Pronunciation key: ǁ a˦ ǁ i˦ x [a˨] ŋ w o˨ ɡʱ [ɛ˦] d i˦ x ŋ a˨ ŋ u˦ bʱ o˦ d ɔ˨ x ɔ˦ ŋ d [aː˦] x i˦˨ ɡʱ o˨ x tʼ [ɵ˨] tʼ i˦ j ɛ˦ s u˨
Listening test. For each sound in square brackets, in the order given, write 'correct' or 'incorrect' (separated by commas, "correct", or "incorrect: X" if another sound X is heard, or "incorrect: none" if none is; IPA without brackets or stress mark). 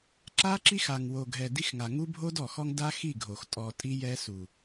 correct, incorrect: ɛ˨, incorrect: a˦, incorrect: ɔ˨